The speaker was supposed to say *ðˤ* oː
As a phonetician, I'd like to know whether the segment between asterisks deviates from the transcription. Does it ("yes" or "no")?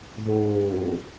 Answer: yes